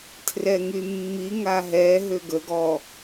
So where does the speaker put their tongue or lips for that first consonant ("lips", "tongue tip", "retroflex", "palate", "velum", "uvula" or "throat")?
tongue tip